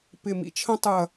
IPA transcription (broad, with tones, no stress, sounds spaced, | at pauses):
p ɪ˧˩ m ḭ˥ t͡ʃʰ ə̃˥ tˤ ɯ˧˩ ɐ̯